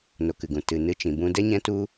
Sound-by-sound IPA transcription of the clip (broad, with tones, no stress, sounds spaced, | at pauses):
n o˨ k ɨ˨ ɡ ũ˨ t ɨ˨ n ɨ˧ t͡ʃ ĩ˨ b ũ˧ d ɛ˦ ɲ ɛ̃˦ t u˦